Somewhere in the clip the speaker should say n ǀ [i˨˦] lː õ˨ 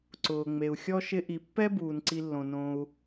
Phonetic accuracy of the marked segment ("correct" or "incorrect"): incorrect